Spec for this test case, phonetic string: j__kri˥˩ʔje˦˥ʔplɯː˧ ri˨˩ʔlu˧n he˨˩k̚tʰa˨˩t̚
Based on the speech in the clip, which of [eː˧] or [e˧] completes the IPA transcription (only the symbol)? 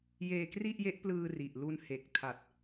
eː˧